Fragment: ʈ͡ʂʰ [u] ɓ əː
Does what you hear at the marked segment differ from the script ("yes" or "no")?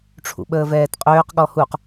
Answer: yes